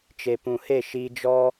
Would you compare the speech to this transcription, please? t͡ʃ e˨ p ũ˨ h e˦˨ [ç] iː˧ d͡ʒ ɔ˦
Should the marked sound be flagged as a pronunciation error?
yes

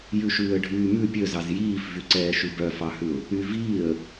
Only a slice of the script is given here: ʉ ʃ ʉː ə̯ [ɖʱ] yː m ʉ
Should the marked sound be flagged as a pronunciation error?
no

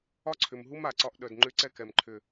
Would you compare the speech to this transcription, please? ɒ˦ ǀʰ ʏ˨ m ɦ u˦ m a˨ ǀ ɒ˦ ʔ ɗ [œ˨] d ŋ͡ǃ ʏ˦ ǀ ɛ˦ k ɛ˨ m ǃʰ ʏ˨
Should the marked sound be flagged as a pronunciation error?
no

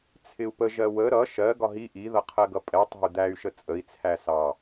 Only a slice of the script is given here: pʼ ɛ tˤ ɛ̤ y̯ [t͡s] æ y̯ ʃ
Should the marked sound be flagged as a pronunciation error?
yes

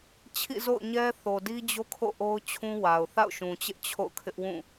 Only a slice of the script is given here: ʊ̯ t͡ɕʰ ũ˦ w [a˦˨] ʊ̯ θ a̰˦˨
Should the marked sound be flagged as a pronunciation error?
yes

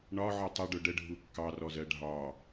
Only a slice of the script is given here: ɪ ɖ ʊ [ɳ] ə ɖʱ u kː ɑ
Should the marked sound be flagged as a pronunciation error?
yes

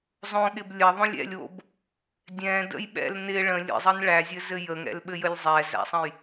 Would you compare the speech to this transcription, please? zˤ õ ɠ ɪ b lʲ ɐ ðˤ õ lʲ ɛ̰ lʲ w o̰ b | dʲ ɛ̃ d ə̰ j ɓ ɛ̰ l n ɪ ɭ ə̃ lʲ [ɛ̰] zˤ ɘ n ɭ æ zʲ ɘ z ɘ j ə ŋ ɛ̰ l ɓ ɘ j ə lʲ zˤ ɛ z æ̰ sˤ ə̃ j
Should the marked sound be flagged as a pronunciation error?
yes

